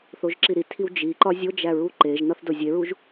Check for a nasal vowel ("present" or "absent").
absent